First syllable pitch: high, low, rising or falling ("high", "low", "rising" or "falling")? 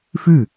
falling